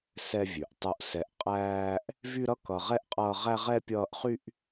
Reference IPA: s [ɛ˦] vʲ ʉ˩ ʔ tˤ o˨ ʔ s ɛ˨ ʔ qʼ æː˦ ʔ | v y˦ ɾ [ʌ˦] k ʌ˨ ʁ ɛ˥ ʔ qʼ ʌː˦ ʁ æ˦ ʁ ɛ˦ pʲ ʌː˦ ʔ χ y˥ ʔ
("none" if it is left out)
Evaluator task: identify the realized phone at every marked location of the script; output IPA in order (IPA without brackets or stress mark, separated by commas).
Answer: ɛ˦, ʌ˦